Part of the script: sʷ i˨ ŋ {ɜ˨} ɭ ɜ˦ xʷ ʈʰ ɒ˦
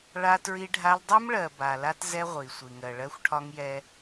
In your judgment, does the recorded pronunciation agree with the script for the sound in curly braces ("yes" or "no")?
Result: yes